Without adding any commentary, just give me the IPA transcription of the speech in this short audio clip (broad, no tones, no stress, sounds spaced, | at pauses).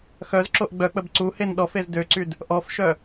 x œ z ǁ o ʔ ɡ͡b œ k͡p ə b ǀ u h e n ɗ ɔ f e z d ø ǀ y d | ʔ ɔ f ʃ œ